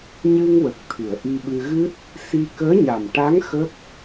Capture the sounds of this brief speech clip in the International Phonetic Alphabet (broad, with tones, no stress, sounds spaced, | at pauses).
ɲ ɨ˧ ŋ w ə˨˩ k̚ t̪ʰ ɨ˨˩˨ ə̯ ʔ i˧ ɓ ɨ˧ ɣ ɨ˦˥ t̚ | s i˧ k əː˧˥ ɲ a˨˩ m ʈ a˧˥ ŋ x ə˦˥ k̚